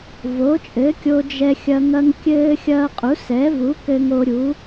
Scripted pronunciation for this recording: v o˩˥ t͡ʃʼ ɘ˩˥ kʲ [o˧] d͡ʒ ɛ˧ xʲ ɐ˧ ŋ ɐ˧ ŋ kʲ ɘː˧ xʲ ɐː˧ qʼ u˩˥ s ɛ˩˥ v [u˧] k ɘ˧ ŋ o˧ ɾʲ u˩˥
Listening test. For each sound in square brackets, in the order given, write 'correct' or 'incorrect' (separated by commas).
correct, incorrect